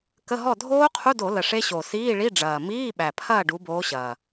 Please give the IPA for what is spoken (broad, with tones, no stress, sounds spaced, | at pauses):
k ə˧˥˧ ɦ ɔ˥˨ dʱ oː˦˥ qʰ u˧˥˧ d o˧˩˧ l ə˨˩ ʂ e˦˥ ɕ o˨˩ s iː˧˥˧ ɭ i˧˥˧ ɖ͡ʐ ɐː˨˩ m iː˧˥˧ ɓ æ˨˩ pʰ ɐː˥˨ ɖ u˨˦ b oː˨˦ ɕ ɐː˨˩